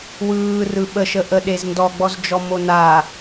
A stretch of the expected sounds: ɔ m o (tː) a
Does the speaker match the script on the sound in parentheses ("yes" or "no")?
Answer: no